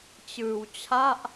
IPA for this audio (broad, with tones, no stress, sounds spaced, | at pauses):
t͡ɕ ɯː˧ w t͡ɕʰ a˥˩ ʔ